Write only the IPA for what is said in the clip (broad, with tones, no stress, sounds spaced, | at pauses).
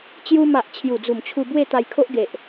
t͡ɕ j u˧ m a˨ ʔ t͡ɕʰ j u˨˩ d͡z u˨˩ m t͡ɕʰ u˧ b w e˥˧ t̪ a˧ j kʰ o˦ ʔ ɡ e˨ ʔ